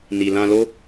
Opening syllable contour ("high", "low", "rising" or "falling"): low